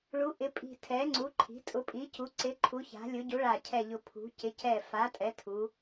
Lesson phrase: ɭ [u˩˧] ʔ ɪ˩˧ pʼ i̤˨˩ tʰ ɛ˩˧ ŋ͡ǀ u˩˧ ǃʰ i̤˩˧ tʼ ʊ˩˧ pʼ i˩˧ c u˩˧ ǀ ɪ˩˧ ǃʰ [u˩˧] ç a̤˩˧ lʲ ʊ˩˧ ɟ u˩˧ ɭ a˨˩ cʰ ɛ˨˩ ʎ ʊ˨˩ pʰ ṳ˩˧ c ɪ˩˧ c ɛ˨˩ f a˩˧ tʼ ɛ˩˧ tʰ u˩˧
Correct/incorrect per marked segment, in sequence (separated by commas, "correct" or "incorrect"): correct, correct